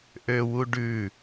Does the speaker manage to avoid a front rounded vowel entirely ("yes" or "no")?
no